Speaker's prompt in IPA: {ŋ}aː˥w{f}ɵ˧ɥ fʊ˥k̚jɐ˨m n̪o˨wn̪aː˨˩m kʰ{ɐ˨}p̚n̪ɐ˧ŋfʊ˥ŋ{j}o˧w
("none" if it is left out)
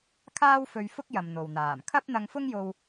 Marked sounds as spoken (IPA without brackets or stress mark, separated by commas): kʰ, f, ɐ˥, j